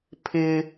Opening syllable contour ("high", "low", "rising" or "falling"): high